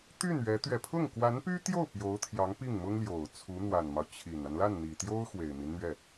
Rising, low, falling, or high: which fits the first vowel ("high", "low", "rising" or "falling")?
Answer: falling